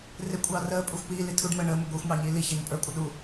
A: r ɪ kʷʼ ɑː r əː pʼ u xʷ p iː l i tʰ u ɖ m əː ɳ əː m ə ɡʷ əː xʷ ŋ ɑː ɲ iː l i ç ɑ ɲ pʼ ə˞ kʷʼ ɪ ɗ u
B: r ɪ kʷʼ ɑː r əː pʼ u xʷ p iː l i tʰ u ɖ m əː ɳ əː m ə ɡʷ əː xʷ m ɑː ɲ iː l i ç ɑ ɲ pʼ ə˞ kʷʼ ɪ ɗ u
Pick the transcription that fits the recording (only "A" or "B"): B